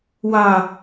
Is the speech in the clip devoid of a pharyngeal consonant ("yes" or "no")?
yes